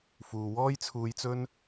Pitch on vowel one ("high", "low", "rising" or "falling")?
low